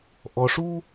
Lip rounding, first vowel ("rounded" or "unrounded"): rounded